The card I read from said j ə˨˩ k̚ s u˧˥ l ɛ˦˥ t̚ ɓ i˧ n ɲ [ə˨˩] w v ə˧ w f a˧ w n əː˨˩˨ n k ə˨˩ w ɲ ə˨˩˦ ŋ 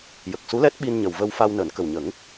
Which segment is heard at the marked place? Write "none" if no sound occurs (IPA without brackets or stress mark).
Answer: ə˨˩